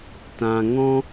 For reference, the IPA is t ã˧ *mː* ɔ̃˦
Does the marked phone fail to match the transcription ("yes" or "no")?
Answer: yes